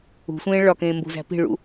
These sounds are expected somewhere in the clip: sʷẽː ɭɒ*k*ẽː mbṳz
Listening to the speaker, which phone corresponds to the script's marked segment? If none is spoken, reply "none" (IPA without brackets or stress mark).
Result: k